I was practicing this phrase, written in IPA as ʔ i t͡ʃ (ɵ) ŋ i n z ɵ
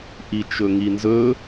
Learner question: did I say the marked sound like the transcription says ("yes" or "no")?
yes